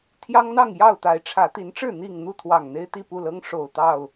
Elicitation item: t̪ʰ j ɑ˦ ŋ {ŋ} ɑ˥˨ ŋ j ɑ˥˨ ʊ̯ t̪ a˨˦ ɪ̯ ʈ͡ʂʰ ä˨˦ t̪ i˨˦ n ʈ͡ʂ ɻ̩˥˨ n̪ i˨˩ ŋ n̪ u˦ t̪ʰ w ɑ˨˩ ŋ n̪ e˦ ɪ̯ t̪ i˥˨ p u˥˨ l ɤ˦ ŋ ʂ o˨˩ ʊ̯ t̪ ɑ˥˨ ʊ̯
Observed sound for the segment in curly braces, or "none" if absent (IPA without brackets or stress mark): n̪